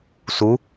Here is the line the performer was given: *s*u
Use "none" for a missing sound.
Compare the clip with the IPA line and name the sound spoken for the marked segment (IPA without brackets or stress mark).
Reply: s